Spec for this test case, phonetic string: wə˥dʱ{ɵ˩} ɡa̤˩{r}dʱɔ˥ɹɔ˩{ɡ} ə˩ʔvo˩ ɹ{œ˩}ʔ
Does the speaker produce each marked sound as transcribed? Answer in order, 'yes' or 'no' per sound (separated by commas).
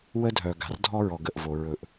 no, yes, yes, no